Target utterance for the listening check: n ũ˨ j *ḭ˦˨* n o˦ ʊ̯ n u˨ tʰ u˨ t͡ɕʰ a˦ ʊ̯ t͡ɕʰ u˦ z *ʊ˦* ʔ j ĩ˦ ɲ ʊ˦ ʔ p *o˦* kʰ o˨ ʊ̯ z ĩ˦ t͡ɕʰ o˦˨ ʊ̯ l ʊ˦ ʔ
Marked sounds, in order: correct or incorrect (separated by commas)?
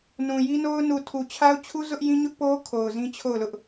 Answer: incorrect, correct, correct